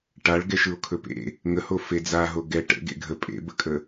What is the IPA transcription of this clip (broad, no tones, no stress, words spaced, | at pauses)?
ʈaɭ ɡɛʃɯo̯kʰɵpḛ | ŋəho fed͡zaɦo ɡɛ ʈə̰ ɡḛɡʱə pʼḛbəkʼə